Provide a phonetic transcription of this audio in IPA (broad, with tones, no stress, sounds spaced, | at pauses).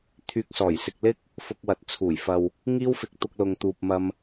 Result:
t̪ʰ yː˨ k̚ s ɔː˨˩ j s ɪ˨ k̚ l ɪ˥ k̚ | f ʊ˧ k̚ w ɐ˨ t̚ t͡sʰ uː˨˩ j f ɐ˨ w | ŋ iː˥ w f ɪ˧ k̚ t̪ ʊ˧ k̚ l ʊ˨ ŋ t̪ uː˨ p̚ m ɐ˧ m